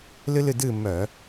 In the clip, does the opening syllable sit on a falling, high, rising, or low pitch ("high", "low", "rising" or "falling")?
high